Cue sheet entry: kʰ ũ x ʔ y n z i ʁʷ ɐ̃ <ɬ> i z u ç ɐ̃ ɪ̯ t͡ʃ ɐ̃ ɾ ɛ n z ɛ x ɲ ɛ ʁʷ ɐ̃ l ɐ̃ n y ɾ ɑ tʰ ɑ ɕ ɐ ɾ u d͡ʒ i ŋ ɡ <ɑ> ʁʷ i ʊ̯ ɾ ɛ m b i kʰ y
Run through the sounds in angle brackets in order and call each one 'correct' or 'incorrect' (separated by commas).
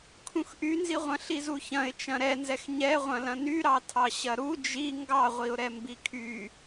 correct, correct